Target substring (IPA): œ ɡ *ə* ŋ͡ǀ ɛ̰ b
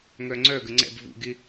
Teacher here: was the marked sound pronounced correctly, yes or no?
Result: yes